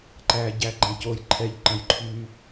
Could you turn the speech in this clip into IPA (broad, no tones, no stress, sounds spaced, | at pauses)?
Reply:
ǃ æ ɟ æ ɡ͡ǃ æ̃ c o j ǃʰ ɛ ʎ ǃ ə̃ j ǃʰ y